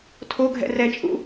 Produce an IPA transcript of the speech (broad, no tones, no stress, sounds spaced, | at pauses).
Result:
tʰ o ɡʱ ɛ̰ r ɛ t͡ʃʼ ṵ